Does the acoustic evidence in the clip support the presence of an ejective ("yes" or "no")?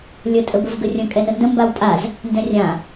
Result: yes